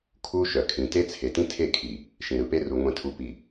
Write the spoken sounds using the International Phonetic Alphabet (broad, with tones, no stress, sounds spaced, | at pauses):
kʰ u˦ ʃ œ˨ kʰ ĩ˨ t e˦ t͡sʰ e˨ t ĩ˦ tʰ e˦˨ kʰ i˨ | ʃ ĩ˨ ɾ ɯ˨ p e˦ r u˨ ŋʷ ẽ˨ tʰ u˨ p i˨